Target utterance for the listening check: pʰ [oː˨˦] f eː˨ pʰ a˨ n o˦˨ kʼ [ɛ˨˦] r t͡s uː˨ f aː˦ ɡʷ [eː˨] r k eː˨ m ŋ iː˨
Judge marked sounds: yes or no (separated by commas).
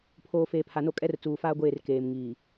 no, no, no